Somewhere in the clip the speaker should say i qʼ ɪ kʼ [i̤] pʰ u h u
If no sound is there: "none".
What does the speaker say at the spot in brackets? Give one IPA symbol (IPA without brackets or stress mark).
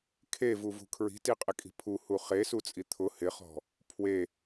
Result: i̤